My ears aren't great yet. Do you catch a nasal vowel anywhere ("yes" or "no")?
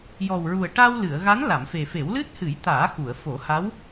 no